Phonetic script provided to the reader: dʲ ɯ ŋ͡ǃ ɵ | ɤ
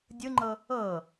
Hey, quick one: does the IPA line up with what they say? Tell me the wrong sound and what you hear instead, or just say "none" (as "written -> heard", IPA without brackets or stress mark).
ɵ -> ɤ